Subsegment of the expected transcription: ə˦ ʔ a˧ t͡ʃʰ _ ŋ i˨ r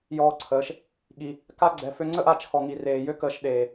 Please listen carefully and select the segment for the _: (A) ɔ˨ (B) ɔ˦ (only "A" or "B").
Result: A